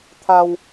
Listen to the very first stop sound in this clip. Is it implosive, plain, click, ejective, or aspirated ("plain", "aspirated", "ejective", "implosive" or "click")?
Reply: aspirated